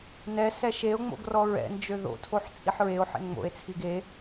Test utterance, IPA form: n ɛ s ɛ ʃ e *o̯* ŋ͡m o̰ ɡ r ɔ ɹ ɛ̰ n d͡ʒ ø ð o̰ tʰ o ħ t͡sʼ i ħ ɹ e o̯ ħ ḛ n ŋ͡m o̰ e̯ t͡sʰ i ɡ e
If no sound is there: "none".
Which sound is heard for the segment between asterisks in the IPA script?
o̯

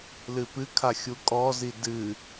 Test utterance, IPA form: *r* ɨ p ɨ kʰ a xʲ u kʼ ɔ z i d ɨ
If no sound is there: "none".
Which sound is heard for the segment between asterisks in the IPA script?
l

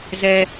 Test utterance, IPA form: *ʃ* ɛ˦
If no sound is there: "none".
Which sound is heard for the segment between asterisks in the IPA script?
z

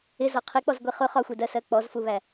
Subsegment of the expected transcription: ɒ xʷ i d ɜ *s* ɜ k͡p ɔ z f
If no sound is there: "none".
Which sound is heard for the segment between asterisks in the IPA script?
s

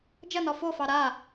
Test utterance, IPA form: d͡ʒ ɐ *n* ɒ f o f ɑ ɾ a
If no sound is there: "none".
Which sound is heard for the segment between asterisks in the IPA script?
n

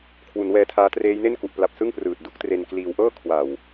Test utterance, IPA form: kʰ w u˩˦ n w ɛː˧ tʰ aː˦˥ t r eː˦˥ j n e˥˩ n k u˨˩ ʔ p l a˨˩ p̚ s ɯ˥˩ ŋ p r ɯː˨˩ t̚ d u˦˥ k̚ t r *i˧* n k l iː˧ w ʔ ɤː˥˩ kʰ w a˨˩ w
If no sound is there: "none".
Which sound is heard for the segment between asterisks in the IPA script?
e˧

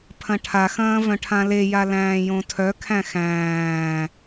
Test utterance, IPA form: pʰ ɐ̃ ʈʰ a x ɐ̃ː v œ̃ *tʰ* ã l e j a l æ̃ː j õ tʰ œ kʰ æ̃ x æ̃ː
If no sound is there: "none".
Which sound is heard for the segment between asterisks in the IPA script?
ʈʰ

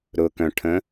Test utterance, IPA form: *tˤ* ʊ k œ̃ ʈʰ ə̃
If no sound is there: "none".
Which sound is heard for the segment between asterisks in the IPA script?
ɾ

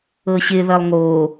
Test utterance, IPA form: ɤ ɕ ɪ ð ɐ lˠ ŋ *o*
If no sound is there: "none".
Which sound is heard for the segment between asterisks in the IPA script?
o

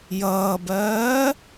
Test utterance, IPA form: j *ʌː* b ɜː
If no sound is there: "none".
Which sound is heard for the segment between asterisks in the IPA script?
ʌː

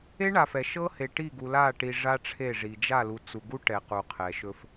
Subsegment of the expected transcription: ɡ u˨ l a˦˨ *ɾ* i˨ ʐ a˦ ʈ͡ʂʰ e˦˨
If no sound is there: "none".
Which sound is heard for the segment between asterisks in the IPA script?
ʈ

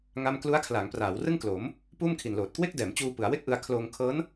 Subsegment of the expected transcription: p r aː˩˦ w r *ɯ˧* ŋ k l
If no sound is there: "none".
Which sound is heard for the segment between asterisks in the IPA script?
ɯ˥˩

